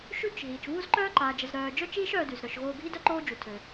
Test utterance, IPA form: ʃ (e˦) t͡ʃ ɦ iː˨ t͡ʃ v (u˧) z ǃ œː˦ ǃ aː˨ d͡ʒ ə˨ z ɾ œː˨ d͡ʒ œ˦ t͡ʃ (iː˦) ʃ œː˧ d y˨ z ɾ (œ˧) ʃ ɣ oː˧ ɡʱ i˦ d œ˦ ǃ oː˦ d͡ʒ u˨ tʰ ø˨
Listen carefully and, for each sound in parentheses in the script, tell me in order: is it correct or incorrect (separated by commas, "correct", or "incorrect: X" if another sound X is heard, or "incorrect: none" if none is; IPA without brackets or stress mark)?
incorrect: y˦, incorrect: u˦, correct, incorrect: œ˨